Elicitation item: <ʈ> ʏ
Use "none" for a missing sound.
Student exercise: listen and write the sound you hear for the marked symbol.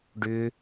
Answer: ɖ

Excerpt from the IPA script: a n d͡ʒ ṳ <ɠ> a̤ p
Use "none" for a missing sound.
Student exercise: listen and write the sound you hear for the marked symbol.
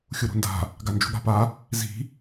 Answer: ɠ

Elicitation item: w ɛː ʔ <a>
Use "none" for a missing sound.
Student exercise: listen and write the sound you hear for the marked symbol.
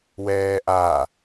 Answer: a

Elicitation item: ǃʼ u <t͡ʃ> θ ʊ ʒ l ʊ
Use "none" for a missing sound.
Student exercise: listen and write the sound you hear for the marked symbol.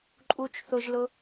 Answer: t͡ʃ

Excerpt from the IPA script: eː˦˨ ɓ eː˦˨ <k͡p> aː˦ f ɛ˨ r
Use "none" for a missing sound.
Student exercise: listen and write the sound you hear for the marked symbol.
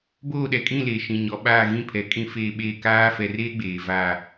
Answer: k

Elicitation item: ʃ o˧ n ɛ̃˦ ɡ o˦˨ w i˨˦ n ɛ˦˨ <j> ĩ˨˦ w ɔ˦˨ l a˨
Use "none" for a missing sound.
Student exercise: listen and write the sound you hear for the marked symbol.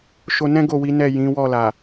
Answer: j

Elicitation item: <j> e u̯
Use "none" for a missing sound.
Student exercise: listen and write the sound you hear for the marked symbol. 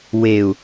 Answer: w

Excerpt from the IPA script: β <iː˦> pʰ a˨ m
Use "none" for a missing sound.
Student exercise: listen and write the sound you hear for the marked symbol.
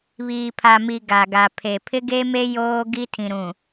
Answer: iː˨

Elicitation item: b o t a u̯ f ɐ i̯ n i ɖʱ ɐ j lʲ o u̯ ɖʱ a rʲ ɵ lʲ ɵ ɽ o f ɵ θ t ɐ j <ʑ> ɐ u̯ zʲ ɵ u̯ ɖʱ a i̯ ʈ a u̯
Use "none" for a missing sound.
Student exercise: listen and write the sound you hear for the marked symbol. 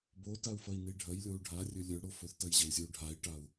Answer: ʑ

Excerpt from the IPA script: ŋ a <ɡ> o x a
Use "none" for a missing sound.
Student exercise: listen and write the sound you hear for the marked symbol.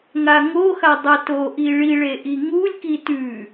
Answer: ŋ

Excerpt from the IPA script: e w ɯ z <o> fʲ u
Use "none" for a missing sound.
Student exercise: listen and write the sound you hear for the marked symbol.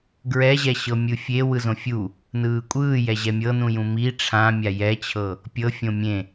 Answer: õ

